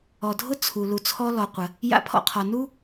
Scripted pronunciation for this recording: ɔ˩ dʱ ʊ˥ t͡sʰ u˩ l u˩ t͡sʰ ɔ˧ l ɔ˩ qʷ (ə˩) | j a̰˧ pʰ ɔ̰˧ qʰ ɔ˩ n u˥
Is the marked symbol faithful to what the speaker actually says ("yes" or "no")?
yes